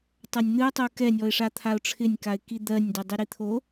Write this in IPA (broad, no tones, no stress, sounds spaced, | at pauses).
tˤ a nʲ n̪ ɨ ʊ̯ tˤ u k ɛ nʲ ɔ ɪ̯ ʂ a t̪ʰ a ʊ̯ ʈ͡ʂʰ ɪ nʲ k a ɪ̯ k i d̪ ɜ nʲ d ɛ dˤ i ɾ i t̪ʰ o